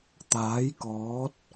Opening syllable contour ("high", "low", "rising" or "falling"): rising